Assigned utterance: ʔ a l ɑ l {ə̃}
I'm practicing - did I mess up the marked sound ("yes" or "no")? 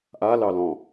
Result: yes